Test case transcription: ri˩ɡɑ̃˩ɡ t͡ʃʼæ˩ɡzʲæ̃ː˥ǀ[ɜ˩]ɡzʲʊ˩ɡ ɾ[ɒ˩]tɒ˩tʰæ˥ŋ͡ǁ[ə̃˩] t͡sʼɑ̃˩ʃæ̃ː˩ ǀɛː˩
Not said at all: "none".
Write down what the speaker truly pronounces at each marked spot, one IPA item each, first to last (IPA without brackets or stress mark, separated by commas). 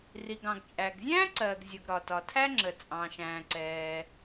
ɜː˩, ɒ˩, ə˩